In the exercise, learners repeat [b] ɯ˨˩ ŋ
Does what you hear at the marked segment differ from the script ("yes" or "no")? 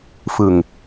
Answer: yes